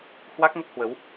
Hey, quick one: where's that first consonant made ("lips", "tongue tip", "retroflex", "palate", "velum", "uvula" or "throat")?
throat